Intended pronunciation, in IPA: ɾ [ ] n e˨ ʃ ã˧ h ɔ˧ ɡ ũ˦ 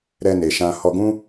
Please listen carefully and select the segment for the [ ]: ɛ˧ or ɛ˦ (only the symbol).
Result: ɛ˧